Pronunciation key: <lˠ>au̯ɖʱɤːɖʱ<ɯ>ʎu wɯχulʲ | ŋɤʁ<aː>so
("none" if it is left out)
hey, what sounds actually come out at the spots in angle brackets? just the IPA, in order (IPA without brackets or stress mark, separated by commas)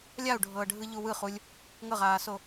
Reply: lʲ, ɯ, aː